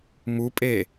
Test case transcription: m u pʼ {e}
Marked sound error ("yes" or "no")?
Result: no